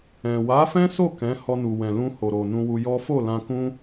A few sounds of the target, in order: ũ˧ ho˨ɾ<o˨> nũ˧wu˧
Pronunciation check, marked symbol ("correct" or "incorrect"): correct